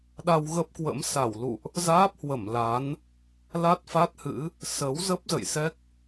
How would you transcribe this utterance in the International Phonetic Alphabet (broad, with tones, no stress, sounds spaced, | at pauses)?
ɗ a˧ w ɣ ə˦˥ p̚ k w ə̰˧˥ m s a˧˩ w l ṵ˧˨ ʔ | z aː˦˥ p̚ h w ə˧˩ m l a˨˦ n | l a˦˥ t̚ f a˦˥ t̚ h ɨ̰˧˥ | s ə˨˦ w z ə˦˥ p̚ z ə̰˧˨ j s ɛ˦˥ k̚